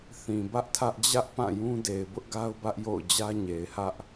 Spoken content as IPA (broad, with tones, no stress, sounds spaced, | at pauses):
θ ĩ˨ b ä˦ ʔ tʰ ä˦ ʔ d͡ʑ ä˦ ʔ p ã˦˨ j ũ˦ d e˨ ɪ̯ b ʊ˦ ʔ ɡ a˦ ʊ̯ b ä˦ ʔ j o̰˦˨ ʊ̯ d͡ʑ ä˦ ɲ e˨ ɪ̯ h ä˦ ʔ